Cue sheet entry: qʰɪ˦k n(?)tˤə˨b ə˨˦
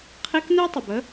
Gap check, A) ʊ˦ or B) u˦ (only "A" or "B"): B